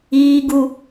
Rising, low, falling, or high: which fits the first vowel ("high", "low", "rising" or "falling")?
high